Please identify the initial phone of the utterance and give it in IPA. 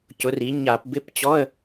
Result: c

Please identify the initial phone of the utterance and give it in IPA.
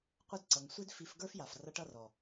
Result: qʷ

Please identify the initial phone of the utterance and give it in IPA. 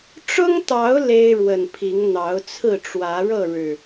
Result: ʈ͡ʂ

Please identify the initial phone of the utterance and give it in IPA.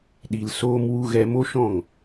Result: ɗ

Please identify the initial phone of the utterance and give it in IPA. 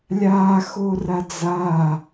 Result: lʲ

